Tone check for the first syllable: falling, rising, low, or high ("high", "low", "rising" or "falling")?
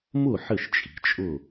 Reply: falling